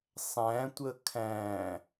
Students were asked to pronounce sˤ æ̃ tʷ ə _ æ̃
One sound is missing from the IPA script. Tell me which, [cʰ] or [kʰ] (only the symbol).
kʰ